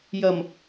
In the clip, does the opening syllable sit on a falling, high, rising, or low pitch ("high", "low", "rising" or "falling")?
low